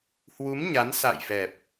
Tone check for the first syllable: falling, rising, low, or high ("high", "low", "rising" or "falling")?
rising